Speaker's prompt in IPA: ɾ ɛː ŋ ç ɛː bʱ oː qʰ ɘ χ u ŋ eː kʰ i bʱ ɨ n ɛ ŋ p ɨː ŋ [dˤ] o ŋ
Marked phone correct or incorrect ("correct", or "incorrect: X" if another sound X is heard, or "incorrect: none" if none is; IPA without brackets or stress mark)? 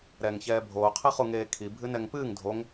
incorrect: dʱ